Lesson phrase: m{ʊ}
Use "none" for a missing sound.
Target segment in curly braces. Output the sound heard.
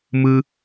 ɯ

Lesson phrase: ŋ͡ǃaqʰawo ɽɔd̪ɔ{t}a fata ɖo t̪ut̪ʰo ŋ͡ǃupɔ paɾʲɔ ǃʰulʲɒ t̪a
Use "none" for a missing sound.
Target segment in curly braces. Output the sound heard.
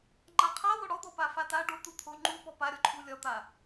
p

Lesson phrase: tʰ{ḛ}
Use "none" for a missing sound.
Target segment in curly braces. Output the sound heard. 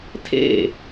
ḛ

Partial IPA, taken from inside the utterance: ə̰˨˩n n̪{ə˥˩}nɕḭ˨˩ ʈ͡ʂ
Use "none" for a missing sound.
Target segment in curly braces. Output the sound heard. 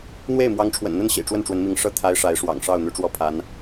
ə˥˩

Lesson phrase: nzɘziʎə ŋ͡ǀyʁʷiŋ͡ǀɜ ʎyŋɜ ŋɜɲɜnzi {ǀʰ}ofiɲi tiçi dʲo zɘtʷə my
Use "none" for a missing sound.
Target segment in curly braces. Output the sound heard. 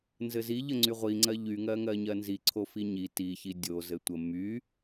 ǀʰ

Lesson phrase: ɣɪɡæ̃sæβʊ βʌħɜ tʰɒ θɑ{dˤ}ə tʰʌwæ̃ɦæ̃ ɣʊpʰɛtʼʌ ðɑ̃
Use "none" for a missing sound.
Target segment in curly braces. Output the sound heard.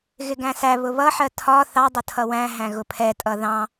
dˤ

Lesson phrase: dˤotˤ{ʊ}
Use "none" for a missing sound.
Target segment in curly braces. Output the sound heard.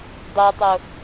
ʊ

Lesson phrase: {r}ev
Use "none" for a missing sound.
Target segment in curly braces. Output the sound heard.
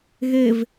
ɣ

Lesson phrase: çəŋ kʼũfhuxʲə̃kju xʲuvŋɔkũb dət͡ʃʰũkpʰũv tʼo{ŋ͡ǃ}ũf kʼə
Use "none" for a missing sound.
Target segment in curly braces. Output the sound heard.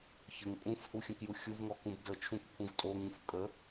ŋ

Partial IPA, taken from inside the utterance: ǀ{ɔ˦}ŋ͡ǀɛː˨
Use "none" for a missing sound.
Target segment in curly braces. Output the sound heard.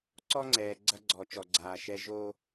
ɔ˦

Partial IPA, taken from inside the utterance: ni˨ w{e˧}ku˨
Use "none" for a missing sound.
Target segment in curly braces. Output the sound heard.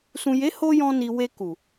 e˧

